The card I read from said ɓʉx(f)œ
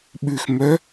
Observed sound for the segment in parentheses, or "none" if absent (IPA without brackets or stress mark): m